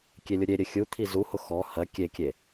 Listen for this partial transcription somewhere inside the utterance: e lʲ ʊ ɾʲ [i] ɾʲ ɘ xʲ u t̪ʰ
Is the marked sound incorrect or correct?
incorrect